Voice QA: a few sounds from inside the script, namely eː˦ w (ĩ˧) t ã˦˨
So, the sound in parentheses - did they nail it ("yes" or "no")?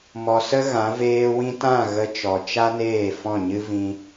yes